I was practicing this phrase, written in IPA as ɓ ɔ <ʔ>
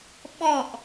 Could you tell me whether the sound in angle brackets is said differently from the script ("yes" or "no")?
no